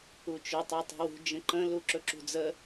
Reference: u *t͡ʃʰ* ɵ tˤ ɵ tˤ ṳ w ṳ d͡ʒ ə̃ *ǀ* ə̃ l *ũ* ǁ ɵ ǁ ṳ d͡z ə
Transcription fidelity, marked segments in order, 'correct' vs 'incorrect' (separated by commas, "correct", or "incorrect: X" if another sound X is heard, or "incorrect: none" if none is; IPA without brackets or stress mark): incorrect: t͡ʃ, incorrect: ǃ, incorrect: u